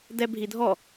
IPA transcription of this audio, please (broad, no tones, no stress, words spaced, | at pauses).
dɛbʱidʱɔ